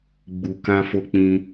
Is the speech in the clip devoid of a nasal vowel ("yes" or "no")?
no